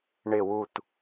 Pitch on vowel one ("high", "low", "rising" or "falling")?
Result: falling